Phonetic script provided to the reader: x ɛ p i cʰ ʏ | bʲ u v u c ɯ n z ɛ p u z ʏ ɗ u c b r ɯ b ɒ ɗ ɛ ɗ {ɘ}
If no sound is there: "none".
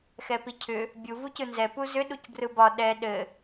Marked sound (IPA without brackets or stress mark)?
ɘ